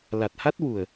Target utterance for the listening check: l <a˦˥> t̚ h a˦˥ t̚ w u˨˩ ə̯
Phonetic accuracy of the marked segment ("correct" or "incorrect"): incorrect